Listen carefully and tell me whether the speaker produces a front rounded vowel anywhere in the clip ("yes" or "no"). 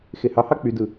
yes